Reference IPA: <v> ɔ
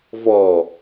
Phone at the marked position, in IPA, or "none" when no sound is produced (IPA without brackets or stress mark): v